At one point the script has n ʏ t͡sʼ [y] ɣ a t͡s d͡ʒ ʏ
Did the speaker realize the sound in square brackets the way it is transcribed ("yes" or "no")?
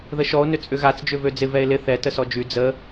no